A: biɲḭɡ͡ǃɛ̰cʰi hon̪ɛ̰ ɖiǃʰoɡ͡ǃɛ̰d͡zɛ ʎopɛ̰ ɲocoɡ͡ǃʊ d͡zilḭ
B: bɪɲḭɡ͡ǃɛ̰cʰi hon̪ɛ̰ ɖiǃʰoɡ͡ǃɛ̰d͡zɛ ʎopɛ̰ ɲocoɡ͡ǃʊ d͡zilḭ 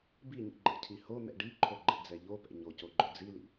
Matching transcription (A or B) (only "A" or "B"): A